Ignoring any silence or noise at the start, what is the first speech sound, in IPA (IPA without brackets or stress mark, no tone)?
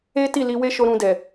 e